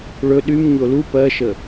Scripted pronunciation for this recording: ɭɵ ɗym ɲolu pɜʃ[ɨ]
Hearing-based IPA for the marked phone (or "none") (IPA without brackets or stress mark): ə